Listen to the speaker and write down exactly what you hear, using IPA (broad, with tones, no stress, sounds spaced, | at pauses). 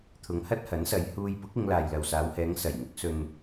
t̪ʰ ʊ˨˧ ŋ h ɐ˥ t̚ h ɐ˨˥ n s ɐ˨˧ j h uː˧ j p ʊ˨˥ k̚ ɪ˨˧ ŋ l aː˨ j l ɐ˨ w s aː˨˧ w h ɛː˨˧ ŋ s ɐ˨˩ j ŋ ʊ˨˥ k̚ s ɵ˨ n